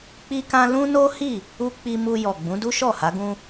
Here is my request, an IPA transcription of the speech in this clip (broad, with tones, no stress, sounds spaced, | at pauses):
k͡p i˦ k ã˦ l ũ˦ n o˦ h i˦˨ | u˦ k͡p i˧ m u˧ j ɔ˨ ɡ͡b ũ˨˦ d u˦ ʃ ɔ˦˨ h a˨˦ ɡ ũ˧